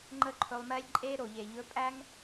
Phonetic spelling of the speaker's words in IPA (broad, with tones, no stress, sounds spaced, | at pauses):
ŋ͡ǃ ə˦ ǃʰ ɵ˧ lˠ m ɛ˦ lʲ ǃʼ e˦ ɾ o˨ ʎ e˨ ʎ ɵ˧ pʼ æ˦ ŋ